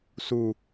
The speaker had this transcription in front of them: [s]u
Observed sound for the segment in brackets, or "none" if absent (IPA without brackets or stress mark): s